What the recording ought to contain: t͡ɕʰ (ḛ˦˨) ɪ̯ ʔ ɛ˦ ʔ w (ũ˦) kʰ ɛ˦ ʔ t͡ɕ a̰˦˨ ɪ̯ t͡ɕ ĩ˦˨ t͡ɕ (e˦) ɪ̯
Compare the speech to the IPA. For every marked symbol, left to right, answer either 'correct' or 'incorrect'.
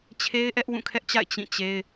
incorrect: e˦, incorrect: ũ˦˨, correct

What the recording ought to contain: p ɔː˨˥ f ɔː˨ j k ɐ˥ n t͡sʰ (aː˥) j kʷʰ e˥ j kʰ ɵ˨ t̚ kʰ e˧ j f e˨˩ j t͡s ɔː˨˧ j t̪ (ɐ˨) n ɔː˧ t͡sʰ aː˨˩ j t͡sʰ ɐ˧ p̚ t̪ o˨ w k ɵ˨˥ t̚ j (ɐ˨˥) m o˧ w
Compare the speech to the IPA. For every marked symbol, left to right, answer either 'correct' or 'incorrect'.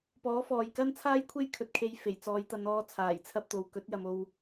correct, incorrect: ɐ˨˧, incorrect: ɐ˨

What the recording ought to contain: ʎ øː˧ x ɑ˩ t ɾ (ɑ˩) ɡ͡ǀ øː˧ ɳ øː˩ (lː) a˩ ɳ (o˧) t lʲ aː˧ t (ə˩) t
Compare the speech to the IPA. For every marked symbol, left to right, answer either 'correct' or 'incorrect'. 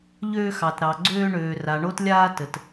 correct, incorrect: r, correct, correct

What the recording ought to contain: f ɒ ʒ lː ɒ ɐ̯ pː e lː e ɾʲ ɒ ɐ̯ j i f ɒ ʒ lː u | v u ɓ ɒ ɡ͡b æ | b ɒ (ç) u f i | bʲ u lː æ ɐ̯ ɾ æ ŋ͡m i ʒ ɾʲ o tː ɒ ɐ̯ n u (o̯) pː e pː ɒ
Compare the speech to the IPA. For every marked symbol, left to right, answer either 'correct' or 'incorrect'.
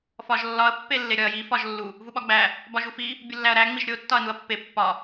incorrect: ʒ, incorrect: ɐ̯

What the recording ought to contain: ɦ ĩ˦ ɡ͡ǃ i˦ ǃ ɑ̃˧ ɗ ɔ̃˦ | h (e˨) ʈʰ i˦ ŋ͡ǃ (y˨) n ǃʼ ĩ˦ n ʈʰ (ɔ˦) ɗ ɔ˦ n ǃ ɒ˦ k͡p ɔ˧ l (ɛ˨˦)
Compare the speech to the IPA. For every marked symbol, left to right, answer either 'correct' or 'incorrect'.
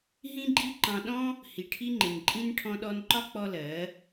incorrect: i˨, incorrect: ɪ˨, incorrect: ɔ̃˦, incorrect: ɜ˨˦

